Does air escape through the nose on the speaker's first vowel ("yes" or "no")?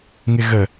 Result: no